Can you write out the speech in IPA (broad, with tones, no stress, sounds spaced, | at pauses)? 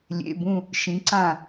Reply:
lʲ ḛ˩˧˩ b ũ˧˩ | ʃ ĩ˩˧ ǀ ã˧˩